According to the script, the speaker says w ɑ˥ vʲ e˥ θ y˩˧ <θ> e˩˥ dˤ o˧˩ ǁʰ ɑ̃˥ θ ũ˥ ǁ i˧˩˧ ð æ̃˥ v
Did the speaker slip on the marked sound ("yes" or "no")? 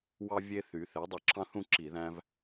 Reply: no